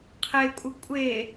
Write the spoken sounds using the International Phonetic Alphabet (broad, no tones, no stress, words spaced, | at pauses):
qʰekʷʼə kʷʼe